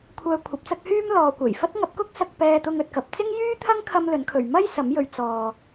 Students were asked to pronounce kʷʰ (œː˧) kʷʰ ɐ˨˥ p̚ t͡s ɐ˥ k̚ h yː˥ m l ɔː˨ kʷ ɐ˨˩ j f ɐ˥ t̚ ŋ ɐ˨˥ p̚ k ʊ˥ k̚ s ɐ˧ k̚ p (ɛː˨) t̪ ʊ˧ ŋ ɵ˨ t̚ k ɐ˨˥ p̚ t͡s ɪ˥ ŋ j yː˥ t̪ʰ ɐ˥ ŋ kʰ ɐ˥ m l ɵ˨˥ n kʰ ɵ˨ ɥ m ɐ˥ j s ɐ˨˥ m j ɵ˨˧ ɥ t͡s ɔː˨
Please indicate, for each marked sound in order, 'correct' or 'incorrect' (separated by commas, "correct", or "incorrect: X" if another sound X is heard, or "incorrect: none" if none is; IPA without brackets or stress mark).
correct, incorrect: ɛː˧